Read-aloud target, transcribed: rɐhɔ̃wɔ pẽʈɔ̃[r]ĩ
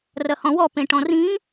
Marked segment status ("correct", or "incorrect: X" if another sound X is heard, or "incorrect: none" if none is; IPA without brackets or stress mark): correct